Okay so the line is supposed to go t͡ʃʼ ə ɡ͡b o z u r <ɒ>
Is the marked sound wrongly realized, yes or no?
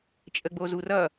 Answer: yes